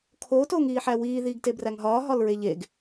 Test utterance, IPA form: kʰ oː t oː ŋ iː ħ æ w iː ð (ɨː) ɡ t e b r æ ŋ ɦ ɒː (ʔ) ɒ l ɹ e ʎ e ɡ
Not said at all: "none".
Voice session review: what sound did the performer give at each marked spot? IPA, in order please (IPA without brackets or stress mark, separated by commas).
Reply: iː, ɦ